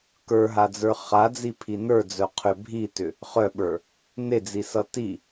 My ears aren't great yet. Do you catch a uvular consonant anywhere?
yes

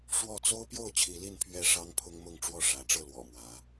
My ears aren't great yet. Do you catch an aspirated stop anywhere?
yes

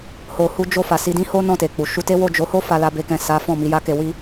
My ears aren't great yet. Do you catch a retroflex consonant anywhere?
no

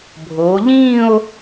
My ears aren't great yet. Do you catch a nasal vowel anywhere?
yes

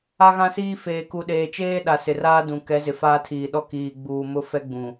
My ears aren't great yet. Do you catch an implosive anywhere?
yes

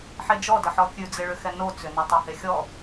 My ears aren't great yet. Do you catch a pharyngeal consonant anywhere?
yes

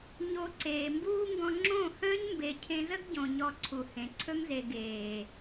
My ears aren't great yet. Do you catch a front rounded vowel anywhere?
no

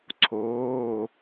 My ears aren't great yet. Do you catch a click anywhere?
yes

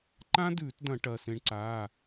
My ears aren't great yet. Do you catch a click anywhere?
yes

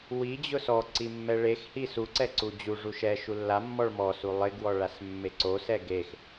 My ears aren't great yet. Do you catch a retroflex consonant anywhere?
yes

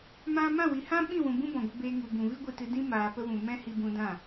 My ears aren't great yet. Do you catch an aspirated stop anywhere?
no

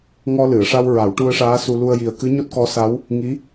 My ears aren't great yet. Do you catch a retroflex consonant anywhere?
yes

